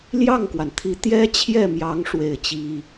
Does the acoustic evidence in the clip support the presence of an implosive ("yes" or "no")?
no